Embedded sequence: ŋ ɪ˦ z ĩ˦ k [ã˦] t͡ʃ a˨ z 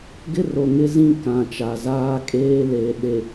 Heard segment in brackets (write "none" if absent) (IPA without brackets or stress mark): ã˨